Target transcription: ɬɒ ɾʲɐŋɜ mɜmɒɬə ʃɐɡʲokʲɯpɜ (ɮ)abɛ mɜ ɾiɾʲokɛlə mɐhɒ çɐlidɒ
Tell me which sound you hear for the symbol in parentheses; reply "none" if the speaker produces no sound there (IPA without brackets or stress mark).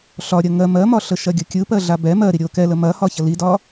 ɮ